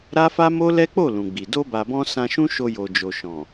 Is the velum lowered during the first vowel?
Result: no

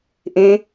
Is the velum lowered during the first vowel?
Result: yes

